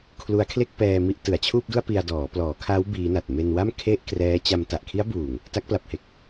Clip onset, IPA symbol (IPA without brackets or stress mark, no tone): kʰ